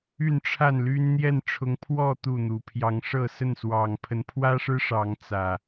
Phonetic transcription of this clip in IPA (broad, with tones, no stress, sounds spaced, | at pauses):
y˥˨ n ʈ͡ʂʰ a˥˨ n l y˦ n n̪ j ɛ˥˨ n ʈ͡ʂʰ ʊ˨˦ ŋ pʰ w ɔ˥˨ t̪ u˥˨ n̪ u˨˦ pʰ j ɑ˨˦ ŋ ʂ ɤ˥˨ s ə˥˨ n s w ɑ˨˩ ŋ pʰ ə˨˦ n pʰ w ä˦ ʂ ɻ̩˦ ʂ ɑ˨˦ ŋ t͡s ä˨˩